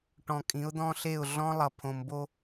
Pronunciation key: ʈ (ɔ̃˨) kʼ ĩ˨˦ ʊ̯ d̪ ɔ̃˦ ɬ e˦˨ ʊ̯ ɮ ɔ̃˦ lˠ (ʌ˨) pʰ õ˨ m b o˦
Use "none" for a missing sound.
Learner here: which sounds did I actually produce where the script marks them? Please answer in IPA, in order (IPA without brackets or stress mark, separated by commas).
ɔ̃˨, ʌ˨